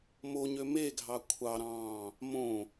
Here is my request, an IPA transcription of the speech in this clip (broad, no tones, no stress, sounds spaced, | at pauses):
m o ɲ ø m e ɡʱ ɑ kʷʰ ɑ ɾ ɑ̃ː | m õ